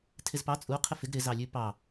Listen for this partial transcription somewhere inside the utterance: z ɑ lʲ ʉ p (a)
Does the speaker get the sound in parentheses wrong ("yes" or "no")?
yes